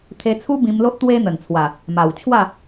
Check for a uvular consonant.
absent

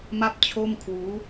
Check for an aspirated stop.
present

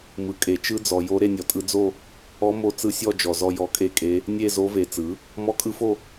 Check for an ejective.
present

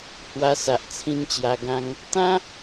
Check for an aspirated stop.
present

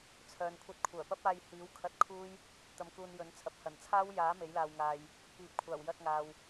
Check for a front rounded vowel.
present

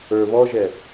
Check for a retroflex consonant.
absent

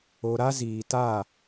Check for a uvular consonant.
absent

